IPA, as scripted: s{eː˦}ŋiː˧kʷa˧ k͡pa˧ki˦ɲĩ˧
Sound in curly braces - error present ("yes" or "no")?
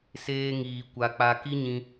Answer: no